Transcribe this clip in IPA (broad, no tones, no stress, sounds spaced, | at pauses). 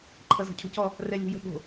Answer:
ǃʰ ʌ z ɔ̤ cʰ o̤ c ɔ | r ɛ lʲ o̤ j ə̤ ɠ o̤